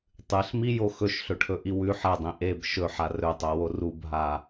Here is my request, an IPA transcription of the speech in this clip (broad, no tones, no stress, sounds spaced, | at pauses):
tˤ ɨ ɬ m i j o x ɵ ʃ ɬ ɵ ʈʰ ɵ ʔ i w ʉ ħ ɐ dˤ ĩ ʔ e b ʃ ɵ ħ a r ɵ tˤ o w o r u b ɦ a